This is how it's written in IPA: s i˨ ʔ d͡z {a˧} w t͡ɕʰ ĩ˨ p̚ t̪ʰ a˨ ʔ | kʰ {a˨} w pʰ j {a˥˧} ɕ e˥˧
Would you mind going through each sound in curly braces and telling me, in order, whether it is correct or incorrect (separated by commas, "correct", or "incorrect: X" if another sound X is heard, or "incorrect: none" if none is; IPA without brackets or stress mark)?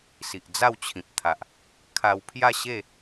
incorrect: a˥˧, incorrect: a˧, correct